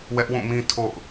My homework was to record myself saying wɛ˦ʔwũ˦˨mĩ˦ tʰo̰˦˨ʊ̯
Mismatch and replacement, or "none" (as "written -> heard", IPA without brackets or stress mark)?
none